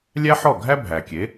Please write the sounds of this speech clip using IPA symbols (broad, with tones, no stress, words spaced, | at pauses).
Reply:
lʲæ˥ ħɔ˥˩ ɡʱæ˥bʱæ˩ kʲe˩˥